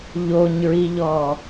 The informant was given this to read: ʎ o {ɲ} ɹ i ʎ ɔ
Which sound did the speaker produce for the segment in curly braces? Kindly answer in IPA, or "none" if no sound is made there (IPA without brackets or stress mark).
ɲ